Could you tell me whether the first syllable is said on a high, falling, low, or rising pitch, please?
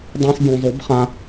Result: high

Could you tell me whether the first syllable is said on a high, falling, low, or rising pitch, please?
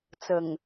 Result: low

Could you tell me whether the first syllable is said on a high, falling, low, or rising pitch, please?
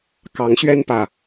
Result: rising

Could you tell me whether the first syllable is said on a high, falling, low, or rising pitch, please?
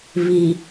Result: low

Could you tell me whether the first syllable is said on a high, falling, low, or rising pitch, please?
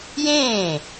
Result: falling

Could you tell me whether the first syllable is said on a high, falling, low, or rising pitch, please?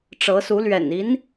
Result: rising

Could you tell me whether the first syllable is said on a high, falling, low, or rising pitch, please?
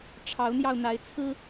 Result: rising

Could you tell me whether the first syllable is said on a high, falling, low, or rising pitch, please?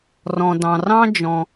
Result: low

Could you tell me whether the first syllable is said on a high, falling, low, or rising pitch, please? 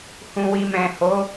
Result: low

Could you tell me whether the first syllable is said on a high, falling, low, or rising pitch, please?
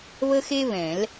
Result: high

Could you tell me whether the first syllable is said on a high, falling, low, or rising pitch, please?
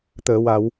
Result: low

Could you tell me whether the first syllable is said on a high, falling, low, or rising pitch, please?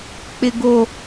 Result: low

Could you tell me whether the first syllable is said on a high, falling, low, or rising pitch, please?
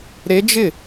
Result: rising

